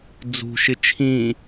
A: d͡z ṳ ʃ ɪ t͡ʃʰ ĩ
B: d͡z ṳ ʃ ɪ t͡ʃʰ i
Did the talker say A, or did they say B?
A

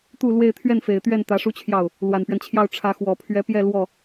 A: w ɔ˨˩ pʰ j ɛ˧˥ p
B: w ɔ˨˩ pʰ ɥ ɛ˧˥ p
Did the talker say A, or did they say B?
B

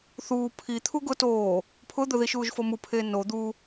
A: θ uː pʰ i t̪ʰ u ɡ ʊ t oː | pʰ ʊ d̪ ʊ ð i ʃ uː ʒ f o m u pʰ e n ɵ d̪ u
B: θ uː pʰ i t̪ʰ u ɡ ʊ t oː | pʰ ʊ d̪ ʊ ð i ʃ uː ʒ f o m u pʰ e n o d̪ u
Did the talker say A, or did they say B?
B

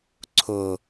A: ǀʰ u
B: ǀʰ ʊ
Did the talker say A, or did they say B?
B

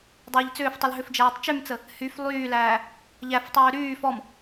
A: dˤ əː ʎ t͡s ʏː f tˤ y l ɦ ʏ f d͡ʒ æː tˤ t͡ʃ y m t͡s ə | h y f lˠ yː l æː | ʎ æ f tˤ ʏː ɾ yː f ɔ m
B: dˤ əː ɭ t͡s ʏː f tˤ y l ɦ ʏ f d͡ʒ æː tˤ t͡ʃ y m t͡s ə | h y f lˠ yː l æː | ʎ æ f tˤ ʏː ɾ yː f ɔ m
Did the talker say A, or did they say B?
A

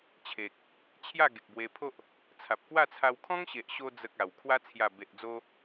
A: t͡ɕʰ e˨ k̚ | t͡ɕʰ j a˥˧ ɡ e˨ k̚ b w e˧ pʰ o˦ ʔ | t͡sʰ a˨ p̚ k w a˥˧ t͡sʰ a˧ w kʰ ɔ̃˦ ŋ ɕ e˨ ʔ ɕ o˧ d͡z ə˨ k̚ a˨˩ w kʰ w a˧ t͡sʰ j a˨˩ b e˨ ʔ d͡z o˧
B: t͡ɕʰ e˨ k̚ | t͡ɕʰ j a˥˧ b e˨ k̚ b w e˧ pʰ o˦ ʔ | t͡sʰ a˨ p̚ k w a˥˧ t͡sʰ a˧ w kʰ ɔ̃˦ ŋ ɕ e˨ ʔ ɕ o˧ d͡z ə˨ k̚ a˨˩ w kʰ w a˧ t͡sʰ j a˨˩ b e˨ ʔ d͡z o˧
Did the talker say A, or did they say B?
A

